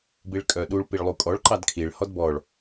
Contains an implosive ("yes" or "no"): yes